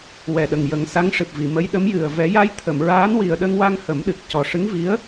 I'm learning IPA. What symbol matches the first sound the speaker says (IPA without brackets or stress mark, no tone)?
w